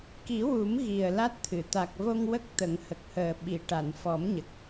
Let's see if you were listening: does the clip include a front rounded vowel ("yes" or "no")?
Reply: no